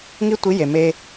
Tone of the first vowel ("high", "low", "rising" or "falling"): high